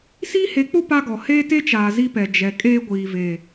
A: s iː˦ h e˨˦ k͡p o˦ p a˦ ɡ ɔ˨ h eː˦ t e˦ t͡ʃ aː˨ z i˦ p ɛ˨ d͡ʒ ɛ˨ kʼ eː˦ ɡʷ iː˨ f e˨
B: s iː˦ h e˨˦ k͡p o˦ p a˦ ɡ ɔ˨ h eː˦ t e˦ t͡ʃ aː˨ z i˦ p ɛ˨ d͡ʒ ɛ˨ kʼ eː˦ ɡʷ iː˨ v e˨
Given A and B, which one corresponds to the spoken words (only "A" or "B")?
B